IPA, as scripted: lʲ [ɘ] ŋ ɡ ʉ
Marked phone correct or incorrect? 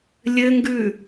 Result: correct